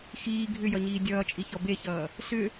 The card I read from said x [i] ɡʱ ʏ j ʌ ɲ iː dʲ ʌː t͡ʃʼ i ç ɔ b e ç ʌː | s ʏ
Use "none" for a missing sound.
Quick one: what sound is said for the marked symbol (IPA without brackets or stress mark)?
iː